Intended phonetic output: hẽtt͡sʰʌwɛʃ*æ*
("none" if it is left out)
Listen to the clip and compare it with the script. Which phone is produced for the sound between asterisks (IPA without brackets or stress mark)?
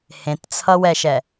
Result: ɛ